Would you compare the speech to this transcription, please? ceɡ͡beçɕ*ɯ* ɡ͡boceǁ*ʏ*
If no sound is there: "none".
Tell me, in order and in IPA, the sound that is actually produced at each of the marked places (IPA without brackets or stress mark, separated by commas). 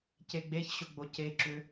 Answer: ʊ, ʏ